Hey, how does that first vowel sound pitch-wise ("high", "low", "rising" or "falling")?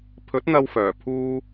rising